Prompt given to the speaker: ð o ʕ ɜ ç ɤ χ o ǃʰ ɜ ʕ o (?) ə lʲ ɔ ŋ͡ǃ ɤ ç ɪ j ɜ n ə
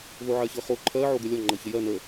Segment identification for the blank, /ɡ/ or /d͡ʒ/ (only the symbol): ɡ